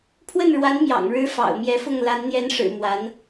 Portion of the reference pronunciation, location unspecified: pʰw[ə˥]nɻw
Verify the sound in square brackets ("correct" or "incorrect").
incorrect